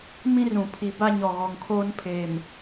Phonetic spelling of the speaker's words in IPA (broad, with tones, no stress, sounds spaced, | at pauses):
m ĩ˦ r ũ˨ pʰ i˨ b a˦ ɲ ɔ˨ ɣ ɔ˨ ŋ kʰ oː˦ n pʰ eː˨ m